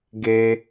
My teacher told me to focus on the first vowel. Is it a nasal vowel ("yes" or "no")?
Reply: no